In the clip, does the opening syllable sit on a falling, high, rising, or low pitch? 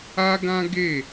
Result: high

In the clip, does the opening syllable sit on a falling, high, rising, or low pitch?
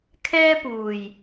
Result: high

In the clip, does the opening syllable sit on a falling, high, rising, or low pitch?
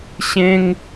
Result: high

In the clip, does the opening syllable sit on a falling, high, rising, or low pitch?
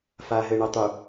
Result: low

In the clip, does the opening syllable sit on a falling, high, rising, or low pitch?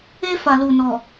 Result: high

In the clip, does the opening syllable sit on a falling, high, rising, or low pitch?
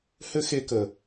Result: high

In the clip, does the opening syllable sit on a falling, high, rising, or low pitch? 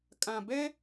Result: low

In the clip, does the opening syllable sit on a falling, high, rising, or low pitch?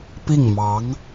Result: falling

